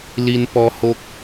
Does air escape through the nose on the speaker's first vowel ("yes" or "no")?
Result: no